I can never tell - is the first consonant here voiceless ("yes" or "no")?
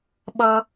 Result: no